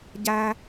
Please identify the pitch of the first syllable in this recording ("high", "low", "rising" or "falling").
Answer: high